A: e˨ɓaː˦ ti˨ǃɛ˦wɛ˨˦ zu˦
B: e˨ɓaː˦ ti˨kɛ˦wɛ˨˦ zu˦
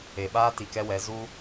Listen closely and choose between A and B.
B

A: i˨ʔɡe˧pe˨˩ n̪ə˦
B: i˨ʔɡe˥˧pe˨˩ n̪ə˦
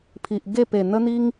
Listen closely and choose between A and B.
B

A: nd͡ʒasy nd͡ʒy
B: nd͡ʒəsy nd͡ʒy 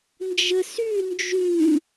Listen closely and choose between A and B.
B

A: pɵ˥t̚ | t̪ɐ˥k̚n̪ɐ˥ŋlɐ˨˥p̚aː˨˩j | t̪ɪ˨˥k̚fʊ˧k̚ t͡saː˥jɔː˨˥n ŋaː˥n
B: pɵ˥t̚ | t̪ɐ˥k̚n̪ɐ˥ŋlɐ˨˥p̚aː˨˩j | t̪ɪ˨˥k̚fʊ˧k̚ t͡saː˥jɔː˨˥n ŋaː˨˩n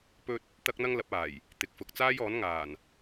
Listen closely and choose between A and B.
B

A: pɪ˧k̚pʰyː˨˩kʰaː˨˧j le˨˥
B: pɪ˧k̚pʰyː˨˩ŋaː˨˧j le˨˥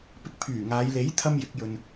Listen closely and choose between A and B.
B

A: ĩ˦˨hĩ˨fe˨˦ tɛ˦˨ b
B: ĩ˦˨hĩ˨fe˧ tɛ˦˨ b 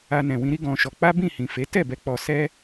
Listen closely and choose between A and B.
A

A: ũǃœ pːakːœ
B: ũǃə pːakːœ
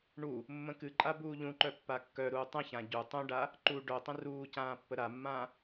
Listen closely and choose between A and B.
A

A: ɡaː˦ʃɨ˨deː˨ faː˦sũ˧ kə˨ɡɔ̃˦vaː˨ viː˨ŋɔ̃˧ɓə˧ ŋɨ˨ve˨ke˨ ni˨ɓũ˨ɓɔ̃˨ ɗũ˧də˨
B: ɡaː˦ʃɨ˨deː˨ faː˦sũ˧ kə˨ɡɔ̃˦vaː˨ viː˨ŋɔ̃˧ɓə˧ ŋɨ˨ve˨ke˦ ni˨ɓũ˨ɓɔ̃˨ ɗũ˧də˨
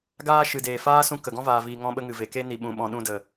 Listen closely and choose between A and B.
B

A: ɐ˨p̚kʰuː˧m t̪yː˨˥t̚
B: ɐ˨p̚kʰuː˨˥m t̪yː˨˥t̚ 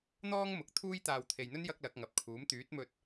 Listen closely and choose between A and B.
B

